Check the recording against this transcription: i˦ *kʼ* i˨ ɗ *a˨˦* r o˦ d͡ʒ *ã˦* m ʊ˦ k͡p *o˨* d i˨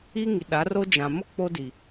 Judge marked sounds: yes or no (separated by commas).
no, yes, no, no